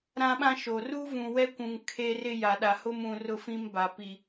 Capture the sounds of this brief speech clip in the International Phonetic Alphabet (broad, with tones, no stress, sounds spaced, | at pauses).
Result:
ɾ ã˦ ɓ ã˦ ʃ o˨ r u˦ v ũ˨ w ɛ˦ kʷ ũ˨ ŋ kʰ e˦ r ɪ˦ j a˨ ɗ a˨ h ʊ˦ m ũ˨ r ʊ˦ f ĩ˦ m b a˨ p i˨